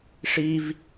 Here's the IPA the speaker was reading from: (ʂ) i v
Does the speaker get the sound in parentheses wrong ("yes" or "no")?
no